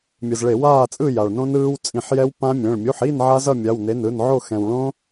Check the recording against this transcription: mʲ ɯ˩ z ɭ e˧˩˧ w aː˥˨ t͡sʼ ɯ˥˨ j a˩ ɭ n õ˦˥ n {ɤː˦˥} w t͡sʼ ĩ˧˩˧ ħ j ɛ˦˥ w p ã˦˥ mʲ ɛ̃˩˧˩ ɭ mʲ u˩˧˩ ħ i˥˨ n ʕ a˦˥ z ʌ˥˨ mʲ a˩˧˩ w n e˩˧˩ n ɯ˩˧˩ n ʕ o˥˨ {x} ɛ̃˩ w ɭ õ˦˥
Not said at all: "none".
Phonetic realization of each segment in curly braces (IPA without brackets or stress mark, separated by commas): ɯː˦˥, x